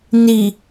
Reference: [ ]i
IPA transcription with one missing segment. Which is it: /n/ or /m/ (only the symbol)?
n